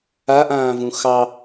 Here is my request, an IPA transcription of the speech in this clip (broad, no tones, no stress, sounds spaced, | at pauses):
a ʔ ãː v ũ x ɑ